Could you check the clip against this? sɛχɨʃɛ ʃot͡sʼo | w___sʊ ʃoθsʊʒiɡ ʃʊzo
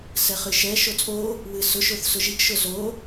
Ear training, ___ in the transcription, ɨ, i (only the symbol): ɨ